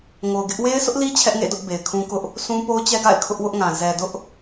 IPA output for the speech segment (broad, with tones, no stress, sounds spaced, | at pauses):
ŋ o˨ ʊ̯ ɡ ɪ˦ ʔ w e˦ ɪ̯ sʰ ʊ˦ ʔ l i˦ t͡ɕʰ ɛ˦ ʔ ŋ ḛ˦˨ d ʊ˦ ʔ b e˨ ɪ̯ kʰ ũ˦ k ʊ˦ ʔ | s ũ˦ p o˦ ʊ̯ t͡ɕ ɛ˦ ɡ a̰˦˨ ɪ̯ kʰ ʊ˦ ʔ w ʊ˦ ʔ ŋ ã˨ z ɛ˨ d ʊ˦ ʔ